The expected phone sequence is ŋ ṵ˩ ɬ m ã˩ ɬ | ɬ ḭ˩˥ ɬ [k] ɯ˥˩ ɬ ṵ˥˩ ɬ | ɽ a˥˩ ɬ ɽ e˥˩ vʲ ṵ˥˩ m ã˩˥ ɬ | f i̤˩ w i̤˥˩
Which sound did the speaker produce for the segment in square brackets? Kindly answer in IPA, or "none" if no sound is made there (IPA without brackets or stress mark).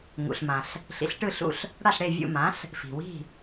ʈ